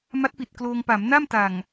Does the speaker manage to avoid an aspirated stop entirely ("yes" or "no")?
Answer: yes